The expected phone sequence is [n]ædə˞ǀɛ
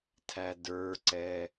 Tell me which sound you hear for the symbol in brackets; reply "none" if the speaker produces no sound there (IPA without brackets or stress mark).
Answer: tʰ